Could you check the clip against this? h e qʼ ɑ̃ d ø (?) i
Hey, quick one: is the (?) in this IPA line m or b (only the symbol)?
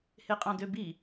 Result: b